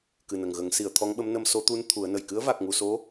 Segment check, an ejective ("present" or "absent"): absent